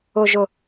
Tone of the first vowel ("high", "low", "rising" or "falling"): low